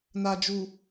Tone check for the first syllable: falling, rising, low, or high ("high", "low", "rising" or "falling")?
low